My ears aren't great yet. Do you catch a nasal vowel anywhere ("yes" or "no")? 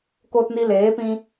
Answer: yes